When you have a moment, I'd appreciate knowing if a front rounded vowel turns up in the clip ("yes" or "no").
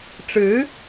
no